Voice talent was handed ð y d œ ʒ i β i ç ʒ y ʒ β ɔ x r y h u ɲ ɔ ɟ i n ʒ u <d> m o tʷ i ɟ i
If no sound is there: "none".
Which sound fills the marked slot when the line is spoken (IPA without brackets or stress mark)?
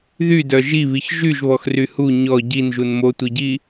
n